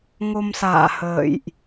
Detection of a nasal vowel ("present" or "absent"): absent